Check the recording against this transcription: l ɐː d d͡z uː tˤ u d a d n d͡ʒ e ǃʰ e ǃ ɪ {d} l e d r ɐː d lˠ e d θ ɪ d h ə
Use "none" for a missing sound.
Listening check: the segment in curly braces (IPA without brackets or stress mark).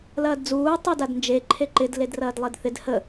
d